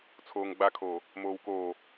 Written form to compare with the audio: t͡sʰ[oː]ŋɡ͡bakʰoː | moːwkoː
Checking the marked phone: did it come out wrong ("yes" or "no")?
no